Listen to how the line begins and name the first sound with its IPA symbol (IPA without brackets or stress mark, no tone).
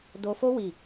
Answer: d